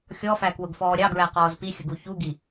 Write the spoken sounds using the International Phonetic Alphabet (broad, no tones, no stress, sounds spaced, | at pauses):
xʲ ɔ f æ k w ʊ ɡ f ɔː ɾʲ ɑ ɡ ɹ æ q ɔː z p i xʲ ə ɡ u ç u ɡ i